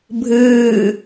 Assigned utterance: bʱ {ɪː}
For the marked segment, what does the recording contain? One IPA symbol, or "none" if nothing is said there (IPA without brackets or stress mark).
ɨː